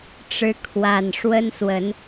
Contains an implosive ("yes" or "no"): no